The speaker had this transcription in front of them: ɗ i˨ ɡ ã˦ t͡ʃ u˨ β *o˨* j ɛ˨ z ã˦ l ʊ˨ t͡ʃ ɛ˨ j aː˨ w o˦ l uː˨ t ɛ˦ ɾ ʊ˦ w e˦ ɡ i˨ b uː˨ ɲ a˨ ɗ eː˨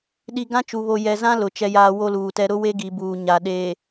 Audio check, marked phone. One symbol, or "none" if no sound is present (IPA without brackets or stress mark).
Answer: o˨